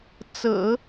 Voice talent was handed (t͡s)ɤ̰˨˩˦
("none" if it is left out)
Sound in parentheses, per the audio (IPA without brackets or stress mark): t͡s